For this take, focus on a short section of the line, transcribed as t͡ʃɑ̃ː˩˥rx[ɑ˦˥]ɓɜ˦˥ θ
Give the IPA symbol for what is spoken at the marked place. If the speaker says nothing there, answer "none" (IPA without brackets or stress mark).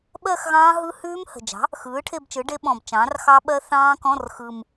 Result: ɑ˦˥